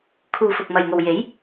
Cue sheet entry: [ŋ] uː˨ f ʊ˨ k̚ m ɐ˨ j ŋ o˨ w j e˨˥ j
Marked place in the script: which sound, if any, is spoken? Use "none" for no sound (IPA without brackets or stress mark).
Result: kʰ